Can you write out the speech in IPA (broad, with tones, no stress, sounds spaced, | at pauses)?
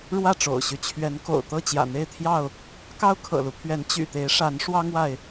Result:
ɻ w ä˥˨ ʈ͡ʂ o̰˨˩ ʊ̯ ɕ y˦ t͡ɕʰ ɥ ɛ˨˦ n k o̰˨˩ ʊ̯ t̪ ɤ˥˨ t͡ɕ j ä̰˨˩ n̪ e˥˨ ɪ̯ t̪ʰ j ɑ˥˨ ʊ̯ | k ɑ˦ ʊ̯ kʰ ɤ̰˨˩ l u˦ pʰ ɥ ɛ˨˦ n t͡ɕ y̰˨˩ t̪ e˨˦ ɪ̯ ʂ a˨˦ n ʂ w ɑ˦ ŋ w a˨ ɪ̯